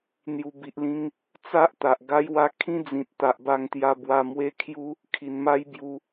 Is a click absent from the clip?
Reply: yes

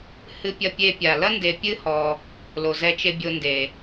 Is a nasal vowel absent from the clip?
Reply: yes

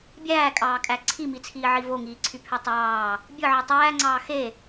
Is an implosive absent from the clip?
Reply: yes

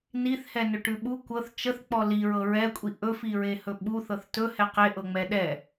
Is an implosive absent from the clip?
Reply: no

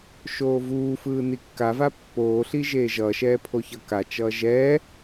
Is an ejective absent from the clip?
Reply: yes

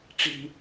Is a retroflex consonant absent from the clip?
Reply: no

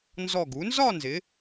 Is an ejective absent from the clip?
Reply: yes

